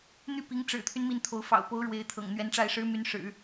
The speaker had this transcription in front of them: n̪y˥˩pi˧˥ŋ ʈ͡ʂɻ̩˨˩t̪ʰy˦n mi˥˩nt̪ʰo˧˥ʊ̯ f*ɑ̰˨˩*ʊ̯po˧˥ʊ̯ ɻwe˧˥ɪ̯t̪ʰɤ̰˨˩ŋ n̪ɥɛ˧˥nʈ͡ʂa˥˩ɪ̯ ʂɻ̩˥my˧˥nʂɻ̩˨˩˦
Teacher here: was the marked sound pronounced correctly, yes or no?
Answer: yes